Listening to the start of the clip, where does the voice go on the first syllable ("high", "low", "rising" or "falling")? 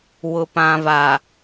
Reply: low